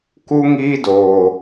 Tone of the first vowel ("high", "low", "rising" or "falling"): high